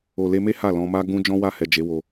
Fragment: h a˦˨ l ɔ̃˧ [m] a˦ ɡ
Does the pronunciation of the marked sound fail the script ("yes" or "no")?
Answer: no